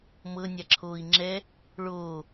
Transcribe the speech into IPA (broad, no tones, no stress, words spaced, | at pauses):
mɤnʲaǁʰoːi̯ ŋ͡ǁɛ | ɭoː